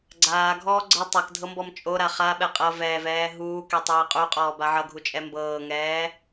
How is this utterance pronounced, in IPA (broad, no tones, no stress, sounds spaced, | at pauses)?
ɡ͡ǀ aː ɡʱ ɔː ɡ͡ǀ ɤ tˤ a k dʱ ɤ m b ɔ m t͡ʃʼ o ɾ a χ a ɓ ɛ qʼ ɤ v ɛː v ɛː ɦ uː k e tˤ ɛː qʼ u qʼ ɔː b a ʕ ʌ ɡʱ u t͡ʃʼ ɛ m b ɤː ŋ ɛː